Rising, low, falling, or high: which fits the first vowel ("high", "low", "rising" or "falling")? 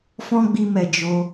high